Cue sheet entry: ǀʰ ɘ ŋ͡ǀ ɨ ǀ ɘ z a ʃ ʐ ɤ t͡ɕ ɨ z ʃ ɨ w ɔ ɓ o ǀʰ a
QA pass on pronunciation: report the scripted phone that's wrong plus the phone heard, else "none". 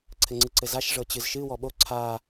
none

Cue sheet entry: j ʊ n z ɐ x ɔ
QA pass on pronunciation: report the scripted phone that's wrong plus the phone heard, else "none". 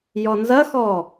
ʊ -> ɔ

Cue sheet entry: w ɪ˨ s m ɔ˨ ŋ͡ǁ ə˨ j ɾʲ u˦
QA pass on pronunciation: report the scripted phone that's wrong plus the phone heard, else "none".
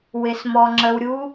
j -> w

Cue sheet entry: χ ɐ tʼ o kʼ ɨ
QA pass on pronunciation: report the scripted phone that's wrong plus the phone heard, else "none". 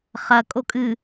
tʼ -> kʼ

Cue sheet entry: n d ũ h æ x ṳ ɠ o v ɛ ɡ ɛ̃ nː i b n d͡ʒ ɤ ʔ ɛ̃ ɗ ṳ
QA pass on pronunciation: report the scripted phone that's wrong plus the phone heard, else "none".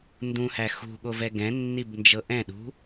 none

